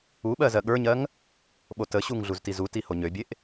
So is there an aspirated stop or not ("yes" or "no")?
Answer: no